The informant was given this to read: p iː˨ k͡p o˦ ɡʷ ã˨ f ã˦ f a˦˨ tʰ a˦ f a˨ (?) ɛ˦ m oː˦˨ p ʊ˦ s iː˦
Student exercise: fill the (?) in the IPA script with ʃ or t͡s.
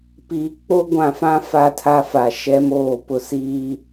ʃ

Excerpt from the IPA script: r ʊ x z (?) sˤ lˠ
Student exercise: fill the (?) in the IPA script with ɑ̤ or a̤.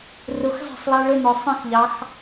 ɑ̤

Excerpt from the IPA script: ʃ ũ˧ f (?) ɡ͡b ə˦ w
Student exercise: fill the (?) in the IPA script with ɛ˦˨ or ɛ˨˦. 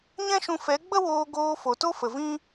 ɛ˨˦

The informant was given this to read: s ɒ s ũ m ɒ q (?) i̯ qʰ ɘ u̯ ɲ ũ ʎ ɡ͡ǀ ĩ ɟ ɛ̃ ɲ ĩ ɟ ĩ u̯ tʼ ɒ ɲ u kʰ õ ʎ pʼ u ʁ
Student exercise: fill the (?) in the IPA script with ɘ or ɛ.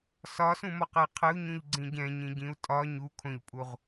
ɛ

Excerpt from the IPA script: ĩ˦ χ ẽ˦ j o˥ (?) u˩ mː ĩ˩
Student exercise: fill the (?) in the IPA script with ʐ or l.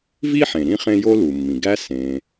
l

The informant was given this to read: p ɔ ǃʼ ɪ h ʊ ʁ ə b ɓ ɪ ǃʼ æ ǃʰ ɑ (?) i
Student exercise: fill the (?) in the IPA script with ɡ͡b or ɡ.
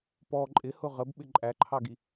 ɡ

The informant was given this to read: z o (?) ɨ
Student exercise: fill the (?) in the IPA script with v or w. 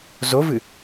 v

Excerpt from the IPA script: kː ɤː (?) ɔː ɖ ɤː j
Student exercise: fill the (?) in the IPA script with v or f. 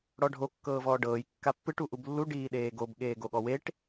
v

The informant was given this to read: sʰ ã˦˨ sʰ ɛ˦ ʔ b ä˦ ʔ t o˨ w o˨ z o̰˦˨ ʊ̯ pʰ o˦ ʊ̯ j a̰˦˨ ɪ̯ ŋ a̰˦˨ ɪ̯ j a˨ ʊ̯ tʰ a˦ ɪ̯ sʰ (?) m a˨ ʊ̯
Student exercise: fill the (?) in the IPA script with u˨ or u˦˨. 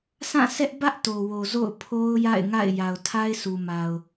u˨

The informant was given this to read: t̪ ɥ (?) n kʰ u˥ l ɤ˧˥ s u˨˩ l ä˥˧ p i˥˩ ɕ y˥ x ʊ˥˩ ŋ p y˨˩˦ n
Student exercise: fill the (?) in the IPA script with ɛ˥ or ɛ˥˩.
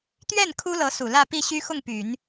ɛ˥˩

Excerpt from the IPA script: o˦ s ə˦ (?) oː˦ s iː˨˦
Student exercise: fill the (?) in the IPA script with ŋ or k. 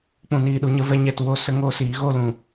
ŋ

